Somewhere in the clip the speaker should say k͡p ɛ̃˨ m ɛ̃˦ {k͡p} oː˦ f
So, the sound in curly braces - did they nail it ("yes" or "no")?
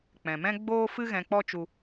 no